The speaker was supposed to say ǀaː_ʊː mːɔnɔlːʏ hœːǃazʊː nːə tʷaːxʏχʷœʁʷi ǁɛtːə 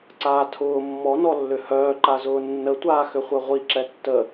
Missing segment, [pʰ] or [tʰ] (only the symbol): tʰ